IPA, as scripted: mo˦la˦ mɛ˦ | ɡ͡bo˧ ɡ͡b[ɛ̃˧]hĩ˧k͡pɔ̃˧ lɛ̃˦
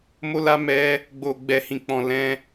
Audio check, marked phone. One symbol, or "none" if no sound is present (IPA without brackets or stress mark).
ɛ˧